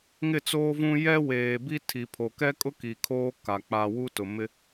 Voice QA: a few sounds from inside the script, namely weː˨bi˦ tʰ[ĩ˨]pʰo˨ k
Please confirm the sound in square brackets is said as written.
no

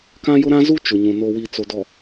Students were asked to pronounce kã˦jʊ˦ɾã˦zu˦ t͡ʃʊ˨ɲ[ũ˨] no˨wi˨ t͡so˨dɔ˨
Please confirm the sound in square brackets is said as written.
yes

